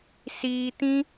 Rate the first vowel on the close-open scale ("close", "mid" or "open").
close